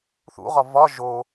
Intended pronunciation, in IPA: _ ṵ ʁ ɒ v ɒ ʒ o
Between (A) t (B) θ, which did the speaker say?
B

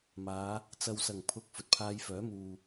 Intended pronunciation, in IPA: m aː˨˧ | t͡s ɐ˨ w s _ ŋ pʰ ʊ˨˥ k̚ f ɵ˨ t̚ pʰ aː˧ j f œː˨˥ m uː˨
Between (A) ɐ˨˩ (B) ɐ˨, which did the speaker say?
A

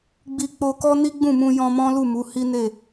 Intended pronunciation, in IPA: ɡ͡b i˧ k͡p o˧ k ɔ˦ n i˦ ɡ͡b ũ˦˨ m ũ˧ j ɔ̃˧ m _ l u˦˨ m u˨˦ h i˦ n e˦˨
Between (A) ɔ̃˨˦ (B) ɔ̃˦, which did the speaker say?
B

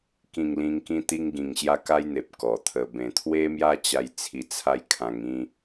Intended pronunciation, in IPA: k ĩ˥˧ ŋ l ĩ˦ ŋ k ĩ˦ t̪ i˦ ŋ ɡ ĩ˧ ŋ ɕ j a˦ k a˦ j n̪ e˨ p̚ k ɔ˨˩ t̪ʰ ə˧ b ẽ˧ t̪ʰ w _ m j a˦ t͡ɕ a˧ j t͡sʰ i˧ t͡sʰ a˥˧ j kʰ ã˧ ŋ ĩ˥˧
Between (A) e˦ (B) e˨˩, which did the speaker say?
A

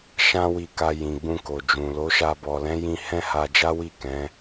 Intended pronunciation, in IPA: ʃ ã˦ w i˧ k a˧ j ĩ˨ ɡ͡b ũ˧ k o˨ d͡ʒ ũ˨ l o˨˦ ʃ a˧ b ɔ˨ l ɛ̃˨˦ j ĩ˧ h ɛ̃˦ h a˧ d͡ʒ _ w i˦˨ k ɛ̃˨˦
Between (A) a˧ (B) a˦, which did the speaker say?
B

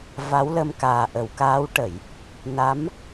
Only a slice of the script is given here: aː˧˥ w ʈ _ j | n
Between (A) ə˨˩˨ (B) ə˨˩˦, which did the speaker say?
A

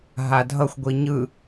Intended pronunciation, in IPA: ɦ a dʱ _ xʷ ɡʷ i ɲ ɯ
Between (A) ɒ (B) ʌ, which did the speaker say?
B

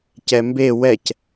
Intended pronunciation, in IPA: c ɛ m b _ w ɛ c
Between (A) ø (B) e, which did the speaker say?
B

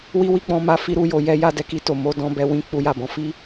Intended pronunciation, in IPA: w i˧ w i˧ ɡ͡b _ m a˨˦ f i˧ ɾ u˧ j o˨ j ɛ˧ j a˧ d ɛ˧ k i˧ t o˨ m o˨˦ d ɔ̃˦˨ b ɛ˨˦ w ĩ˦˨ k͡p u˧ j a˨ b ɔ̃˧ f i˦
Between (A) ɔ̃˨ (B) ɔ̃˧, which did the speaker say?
A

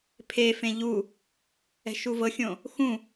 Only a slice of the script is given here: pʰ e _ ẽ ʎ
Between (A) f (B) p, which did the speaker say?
A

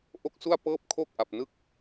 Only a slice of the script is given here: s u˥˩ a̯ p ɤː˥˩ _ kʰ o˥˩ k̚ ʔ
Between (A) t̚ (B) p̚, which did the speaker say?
B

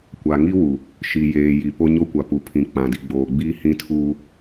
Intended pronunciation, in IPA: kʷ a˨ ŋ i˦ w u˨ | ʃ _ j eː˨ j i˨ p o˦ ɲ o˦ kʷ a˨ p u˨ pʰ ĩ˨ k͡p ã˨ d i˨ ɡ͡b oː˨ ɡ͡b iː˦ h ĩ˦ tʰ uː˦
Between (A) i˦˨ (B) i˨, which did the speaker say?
B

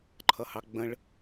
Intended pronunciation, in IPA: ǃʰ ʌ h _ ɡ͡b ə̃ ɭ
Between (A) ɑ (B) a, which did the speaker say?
A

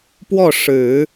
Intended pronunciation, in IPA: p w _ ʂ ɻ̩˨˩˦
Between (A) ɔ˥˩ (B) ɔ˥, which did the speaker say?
A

